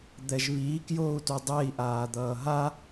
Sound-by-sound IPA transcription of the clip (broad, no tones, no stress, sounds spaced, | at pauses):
d̪ ɛ ʒ β iː k j oː u̯ t u dˤ e i̯ ʔ aː d̪ ʌː ɦ a